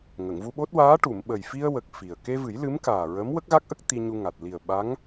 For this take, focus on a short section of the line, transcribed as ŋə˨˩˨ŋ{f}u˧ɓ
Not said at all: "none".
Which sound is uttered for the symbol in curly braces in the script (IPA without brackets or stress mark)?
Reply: v